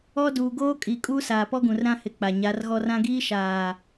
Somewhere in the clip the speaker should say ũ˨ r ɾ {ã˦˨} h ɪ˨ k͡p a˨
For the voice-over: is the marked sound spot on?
no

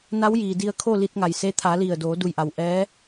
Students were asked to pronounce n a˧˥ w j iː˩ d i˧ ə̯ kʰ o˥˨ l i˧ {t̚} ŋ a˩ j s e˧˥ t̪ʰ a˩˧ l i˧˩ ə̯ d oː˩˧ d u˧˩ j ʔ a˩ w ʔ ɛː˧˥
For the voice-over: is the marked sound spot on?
yes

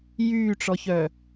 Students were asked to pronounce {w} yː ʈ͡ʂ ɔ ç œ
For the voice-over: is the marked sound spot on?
no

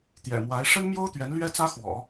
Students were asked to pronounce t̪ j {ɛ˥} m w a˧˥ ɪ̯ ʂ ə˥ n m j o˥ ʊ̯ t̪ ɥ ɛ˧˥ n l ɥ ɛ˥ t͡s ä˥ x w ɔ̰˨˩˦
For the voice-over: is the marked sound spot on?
no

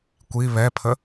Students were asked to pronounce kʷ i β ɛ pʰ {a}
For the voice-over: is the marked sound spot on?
no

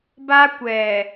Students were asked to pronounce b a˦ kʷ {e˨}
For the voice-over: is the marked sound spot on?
no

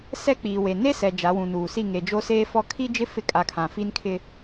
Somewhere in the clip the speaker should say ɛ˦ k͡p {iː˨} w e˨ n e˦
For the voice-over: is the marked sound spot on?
yes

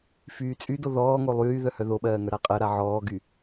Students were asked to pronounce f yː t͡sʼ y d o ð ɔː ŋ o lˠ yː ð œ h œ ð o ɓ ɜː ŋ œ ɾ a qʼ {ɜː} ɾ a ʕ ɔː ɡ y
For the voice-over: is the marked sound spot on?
no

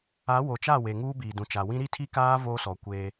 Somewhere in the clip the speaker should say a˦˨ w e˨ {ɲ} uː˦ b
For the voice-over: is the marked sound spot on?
no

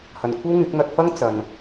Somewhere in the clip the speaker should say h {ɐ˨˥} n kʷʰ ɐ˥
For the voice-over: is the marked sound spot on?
no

